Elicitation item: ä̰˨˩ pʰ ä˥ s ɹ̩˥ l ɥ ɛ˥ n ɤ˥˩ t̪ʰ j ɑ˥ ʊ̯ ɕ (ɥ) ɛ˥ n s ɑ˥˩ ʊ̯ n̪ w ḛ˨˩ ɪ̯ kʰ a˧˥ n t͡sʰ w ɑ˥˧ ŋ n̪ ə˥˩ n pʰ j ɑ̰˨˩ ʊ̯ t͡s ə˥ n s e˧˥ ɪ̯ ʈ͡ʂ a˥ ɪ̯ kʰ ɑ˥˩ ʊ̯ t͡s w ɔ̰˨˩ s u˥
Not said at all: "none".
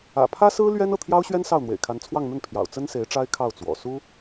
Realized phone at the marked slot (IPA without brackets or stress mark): ɥ